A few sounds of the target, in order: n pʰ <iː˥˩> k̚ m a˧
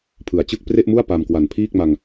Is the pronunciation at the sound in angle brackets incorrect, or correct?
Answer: correct